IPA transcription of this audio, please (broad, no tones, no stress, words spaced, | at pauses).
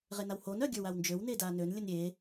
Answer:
ʁenawhon œ ɡʲə˞wawnd͡ʒøw nedanøn lʲənɾʲe